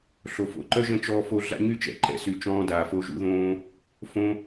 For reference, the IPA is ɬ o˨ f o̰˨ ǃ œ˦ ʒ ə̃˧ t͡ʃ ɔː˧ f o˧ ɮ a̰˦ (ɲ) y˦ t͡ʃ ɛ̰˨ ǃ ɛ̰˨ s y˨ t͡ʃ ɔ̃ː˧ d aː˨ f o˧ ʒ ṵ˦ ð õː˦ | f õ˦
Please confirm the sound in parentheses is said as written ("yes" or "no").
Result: yes